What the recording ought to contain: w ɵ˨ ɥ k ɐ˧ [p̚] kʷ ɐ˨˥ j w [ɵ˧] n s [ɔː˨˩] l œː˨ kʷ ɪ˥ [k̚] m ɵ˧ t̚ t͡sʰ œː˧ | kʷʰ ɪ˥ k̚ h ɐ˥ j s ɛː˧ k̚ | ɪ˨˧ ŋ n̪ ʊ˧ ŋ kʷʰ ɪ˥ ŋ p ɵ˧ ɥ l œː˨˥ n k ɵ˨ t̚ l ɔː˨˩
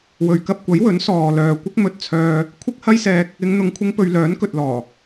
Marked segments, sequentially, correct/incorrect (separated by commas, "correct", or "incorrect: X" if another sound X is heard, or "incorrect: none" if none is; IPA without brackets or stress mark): correct, incorrect: ɵ˨˥, incorrect: ɔː˨, correct